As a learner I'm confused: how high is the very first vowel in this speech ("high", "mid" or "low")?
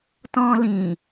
mid